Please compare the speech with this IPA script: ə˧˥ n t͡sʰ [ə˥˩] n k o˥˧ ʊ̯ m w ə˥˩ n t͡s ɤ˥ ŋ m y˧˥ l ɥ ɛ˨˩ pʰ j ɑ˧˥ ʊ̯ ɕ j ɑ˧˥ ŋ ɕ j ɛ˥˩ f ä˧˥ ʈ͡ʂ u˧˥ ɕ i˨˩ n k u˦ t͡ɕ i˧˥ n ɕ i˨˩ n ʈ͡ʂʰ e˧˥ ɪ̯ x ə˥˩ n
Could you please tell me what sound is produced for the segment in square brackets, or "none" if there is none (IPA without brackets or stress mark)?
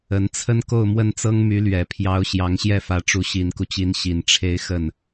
ə˥